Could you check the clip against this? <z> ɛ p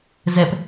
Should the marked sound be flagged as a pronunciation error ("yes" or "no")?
no